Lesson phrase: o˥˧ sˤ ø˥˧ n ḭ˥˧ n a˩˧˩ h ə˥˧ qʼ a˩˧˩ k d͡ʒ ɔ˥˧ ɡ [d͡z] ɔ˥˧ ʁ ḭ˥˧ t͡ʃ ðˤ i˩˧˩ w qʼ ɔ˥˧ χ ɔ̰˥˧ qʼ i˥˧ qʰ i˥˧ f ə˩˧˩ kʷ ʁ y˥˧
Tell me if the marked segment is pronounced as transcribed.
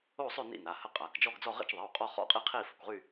yes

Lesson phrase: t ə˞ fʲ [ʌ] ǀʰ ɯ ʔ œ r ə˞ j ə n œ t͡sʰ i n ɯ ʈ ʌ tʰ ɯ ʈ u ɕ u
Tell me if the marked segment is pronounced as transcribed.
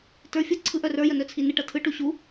yes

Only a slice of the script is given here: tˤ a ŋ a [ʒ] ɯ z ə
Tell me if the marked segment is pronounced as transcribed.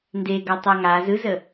no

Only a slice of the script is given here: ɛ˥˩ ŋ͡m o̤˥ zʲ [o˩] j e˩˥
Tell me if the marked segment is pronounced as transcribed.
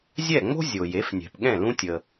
yes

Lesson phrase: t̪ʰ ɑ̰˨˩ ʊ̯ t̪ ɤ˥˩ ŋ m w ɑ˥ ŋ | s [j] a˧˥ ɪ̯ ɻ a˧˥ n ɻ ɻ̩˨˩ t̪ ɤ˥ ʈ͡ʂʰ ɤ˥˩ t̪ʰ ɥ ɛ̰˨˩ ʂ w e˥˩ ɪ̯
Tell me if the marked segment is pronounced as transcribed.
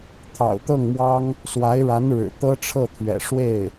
no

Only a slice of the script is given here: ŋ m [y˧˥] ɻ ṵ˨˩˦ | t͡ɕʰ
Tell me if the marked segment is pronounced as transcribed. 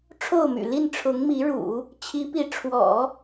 no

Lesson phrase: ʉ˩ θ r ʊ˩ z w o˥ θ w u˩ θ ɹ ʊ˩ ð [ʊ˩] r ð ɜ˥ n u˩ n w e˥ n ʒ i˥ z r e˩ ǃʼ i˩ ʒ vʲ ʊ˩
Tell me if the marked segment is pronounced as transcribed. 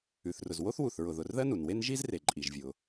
yes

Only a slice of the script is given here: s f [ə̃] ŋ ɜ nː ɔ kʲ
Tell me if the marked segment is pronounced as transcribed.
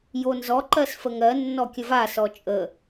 no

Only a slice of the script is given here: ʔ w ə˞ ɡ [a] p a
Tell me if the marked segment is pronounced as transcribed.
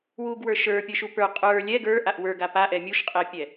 yes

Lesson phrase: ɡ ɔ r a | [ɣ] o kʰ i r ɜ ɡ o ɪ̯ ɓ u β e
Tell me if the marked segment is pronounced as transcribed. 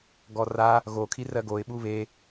yes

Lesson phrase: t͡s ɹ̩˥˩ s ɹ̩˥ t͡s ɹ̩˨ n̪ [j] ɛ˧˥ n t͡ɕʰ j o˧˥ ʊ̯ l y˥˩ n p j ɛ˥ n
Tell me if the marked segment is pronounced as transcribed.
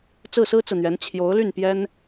no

